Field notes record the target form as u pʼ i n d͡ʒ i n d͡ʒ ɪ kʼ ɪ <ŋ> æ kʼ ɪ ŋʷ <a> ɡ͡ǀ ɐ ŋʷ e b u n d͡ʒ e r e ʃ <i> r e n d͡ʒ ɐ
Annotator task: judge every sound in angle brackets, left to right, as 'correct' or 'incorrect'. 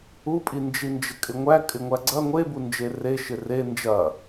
incorrect, incorrect, incorrect

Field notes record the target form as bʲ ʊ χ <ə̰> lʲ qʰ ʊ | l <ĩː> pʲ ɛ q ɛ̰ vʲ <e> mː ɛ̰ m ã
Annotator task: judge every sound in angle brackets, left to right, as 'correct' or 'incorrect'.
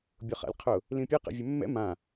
incorrect, incorrect, incorrect

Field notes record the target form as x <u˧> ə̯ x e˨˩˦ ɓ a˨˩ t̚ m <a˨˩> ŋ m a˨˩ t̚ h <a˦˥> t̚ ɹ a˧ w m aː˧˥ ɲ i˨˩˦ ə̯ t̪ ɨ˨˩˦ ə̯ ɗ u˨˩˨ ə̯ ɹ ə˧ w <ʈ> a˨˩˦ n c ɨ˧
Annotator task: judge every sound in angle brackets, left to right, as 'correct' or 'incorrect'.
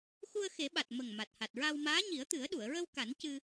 correct, incorrect, incorrect, incorrect

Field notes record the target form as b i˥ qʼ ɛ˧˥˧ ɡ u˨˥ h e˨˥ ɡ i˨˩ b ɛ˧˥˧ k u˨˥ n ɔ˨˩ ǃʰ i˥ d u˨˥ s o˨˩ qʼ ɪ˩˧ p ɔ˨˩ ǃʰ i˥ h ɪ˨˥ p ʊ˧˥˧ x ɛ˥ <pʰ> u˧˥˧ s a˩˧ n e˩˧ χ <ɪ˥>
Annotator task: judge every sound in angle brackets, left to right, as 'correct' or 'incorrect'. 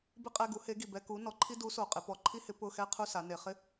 incorrect, incorrect

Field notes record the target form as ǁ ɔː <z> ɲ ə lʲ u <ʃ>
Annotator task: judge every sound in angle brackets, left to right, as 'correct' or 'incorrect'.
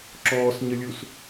incorrect, incorrect

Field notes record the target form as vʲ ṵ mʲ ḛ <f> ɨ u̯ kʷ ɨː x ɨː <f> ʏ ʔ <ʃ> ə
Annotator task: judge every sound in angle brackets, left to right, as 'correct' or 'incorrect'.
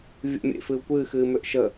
correct, incorrect, correct

